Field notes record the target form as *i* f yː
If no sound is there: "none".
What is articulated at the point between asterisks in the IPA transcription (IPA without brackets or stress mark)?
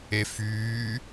e